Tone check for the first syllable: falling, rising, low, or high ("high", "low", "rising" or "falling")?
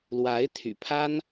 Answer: rising